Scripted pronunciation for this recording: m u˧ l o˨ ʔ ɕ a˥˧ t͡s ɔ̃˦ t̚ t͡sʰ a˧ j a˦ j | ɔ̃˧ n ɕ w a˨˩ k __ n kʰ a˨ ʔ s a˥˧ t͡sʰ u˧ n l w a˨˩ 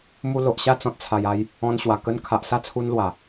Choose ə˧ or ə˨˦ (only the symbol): ə˧